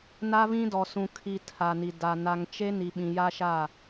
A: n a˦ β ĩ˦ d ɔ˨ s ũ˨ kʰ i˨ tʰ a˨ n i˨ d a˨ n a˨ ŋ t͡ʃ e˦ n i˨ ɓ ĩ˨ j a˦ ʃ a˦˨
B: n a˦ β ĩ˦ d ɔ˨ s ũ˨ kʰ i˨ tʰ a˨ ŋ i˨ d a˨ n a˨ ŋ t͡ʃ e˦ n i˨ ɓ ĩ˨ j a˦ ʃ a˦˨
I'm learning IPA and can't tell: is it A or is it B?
A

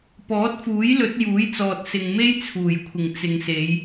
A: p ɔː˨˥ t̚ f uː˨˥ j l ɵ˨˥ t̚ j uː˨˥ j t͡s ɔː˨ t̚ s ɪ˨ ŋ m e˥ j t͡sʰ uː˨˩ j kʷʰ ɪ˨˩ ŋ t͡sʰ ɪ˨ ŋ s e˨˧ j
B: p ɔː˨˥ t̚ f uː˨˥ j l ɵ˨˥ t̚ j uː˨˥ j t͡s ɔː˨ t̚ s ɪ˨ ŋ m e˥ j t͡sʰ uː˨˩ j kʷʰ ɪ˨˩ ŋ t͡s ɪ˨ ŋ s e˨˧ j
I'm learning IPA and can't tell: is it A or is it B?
B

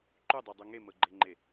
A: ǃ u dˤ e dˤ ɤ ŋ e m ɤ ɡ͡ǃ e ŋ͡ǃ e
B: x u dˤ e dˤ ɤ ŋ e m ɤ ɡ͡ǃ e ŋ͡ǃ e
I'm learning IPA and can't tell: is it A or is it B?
A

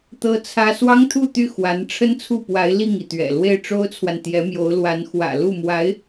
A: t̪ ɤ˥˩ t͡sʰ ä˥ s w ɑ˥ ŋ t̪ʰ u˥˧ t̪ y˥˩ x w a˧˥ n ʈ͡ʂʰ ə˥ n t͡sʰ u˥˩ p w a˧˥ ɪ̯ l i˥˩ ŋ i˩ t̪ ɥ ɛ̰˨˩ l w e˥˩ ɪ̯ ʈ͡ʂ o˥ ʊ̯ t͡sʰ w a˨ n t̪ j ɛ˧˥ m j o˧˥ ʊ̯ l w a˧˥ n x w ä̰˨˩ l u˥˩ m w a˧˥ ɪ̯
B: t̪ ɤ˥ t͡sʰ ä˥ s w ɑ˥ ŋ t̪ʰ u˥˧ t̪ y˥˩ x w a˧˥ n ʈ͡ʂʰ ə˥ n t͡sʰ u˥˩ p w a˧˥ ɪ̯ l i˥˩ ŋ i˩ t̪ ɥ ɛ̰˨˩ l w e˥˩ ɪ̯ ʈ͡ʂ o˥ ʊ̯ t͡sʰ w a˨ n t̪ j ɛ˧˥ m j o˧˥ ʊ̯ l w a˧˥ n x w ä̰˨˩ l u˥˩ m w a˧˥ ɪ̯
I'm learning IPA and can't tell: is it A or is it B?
B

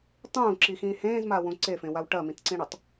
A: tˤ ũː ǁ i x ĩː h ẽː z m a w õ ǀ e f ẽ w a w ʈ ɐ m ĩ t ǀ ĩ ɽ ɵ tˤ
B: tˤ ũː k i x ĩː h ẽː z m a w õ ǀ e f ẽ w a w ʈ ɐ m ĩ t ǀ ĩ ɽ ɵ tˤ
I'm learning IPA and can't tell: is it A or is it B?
A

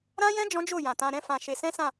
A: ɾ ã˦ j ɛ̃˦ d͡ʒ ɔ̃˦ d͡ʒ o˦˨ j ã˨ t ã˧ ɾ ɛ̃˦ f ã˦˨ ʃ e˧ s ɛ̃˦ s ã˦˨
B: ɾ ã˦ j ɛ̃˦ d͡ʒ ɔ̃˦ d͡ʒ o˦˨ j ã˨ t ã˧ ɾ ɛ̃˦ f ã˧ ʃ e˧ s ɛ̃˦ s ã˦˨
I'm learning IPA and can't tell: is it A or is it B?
B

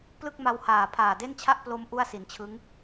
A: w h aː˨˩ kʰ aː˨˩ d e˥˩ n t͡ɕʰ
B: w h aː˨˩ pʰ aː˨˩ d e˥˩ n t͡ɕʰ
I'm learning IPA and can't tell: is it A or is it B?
B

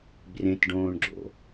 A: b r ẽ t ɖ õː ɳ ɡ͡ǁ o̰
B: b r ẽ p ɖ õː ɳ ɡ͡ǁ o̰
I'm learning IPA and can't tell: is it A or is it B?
A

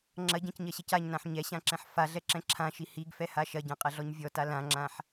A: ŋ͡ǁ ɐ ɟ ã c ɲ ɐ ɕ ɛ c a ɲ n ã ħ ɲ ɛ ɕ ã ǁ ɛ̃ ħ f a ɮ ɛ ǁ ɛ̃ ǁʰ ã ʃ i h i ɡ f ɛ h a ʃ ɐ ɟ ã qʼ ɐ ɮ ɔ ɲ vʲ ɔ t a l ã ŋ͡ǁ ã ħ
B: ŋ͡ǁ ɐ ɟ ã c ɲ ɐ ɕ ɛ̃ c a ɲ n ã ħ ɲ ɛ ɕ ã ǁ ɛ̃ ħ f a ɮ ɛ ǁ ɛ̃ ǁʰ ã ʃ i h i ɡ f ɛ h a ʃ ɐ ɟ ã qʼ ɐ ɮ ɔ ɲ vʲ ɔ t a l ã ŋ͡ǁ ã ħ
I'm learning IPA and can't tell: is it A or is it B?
A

